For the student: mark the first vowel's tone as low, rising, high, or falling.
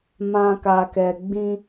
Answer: high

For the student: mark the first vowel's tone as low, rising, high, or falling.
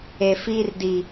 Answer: low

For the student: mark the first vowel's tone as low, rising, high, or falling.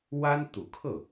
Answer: high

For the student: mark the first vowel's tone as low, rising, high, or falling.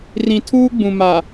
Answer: low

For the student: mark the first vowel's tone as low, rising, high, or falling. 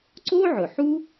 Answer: high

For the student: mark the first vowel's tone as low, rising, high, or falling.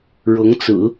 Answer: rising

